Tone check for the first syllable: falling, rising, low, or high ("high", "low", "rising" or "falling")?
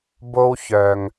high